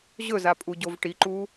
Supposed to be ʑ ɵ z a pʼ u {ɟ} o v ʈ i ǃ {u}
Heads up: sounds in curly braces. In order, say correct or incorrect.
correct, correct

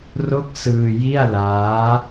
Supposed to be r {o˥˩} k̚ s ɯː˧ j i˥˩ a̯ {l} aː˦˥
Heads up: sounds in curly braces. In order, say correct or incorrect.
correct, correct

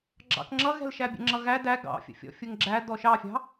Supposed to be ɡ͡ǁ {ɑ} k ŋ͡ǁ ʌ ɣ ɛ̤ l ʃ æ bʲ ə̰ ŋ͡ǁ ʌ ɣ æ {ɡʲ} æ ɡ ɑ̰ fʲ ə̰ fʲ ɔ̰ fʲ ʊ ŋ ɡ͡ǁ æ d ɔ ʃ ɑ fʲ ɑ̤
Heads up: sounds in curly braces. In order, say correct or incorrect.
incorrect: ɑ̰, incorrect: d

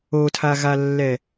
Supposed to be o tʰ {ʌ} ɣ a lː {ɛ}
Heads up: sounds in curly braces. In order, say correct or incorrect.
incorrect: a, correct

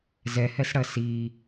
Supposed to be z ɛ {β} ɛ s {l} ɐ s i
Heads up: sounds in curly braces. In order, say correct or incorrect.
incorrect: h, incorrect: ɽ

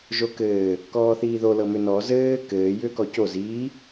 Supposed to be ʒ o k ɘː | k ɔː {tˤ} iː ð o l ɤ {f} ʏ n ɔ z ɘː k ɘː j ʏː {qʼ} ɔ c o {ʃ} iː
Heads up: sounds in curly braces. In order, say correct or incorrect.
incorrect: θ, incorrect: m, incorrect: k, incorrect: z

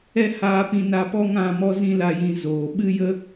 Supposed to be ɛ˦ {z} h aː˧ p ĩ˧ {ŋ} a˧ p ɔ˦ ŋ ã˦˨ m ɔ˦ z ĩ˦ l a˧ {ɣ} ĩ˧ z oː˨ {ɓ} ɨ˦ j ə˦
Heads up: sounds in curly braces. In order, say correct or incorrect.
incorrect: none, incorrect: n, incorrect: j, correct

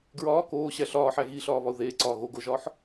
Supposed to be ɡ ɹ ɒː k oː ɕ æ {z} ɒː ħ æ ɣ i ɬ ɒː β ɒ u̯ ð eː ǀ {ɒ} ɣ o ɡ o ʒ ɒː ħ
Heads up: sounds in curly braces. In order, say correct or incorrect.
incorrect: ɬ, incorrect: ɒː

